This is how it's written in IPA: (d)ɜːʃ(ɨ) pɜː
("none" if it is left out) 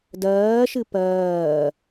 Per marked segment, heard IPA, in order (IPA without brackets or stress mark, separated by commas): d, ɨ